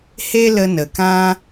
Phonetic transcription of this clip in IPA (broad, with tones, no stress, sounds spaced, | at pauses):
h e˦ l ə˧ n ə˨ k ã˦